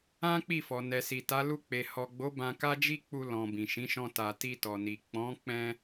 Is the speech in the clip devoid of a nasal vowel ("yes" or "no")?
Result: no